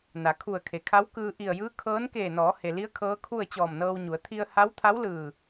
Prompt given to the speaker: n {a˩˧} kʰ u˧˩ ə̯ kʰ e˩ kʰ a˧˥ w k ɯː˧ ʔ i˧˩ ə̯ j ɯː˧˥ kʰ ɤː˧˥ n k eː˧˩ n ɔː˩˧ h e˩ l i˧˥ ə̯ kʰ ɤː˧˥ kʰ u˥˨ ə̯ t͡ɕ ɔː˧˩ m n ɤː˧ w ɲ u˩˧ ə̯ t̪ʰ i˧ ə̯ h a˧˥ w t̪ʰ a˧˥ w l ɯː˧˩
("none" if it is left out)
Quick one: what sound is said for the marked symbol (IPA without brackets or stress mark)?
a˩˧